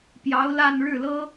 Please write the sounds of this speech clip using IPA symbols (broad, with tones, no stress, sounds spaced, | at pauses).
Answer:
p j ɑ˧˥ ʊ̯ l a˥˧ n ɻ ɻ̩˥˩ l ɤ˥